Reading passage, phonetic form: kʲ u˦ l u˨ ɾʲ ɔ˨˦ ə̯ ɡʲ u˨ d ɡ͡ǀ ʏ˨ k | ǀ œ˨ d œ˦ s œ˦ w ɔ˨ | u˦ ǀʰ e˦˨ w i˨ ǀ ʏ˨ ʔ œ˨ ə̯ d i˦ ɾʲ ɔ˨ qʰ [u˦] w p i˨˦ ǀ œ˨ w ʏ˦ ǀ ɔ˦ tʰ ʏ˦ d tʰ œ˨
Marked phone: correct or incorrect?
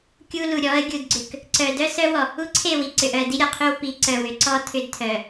incorrect